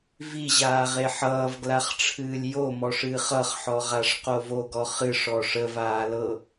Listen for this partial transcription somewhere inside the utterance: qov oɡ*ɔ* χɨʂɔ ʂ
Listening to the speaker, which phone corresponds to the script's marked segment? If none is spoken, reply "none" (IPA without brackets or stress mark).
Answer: ɔ